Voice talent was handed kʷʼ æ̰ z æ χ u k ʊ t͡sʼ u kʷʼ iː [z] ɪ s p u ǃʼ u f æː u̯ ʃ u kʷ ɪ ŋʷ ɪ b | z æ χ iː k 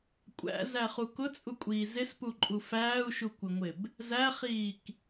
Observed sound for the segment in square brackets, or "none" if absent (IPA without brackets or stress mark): z